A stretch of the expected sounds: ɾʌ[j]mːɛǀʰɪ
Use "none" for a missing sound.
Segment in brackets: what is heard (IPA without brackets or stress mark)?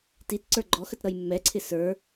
j